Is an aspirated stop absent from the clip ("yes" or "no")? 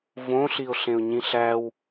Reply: yes